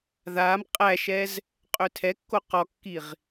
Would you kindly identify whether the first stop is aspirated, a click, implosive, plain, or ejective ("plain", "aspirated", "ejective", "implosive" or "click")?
ejective